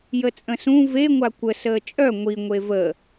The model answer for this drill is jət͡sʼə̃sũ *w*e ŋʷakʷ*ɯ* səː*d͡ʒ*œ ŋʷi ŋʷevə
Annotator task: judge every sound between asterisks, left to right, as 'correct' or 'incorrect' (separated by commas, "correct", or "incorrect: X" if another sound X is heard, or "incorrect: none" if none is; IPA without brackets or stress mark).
incorrect: v, incorrect: ə, incorrect: t͡ʃʼ